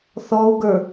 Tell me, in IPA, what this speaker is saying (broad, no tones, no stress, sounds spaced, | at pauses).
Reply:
θ ɔ u̯ ɡ ə˞